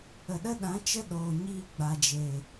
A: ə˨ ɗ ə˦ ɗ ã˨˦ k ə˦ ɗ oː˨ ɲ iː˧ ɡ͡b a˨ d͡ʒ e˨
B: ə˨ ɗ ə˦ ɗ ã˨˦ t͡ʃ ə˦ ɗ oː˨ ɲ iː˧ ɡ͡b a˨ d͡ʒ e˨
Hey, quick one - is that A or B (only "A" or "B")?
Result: B